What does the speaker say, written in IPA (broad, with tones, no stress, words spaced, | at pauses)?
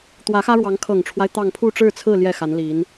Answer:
t̪wä˧˥xä˥ɻwɑ˧˥ŋ kʰɤ˨˩ŋʈ͡ʂʰwa˦ɪ̯ t̪ɑ˥˧ŋ pʰu˥˧ʈ͡ʂɻ̩˥˧t͡sʰɹ̩˥˧ ljɛ˥˩xa˧˥nli˧˥n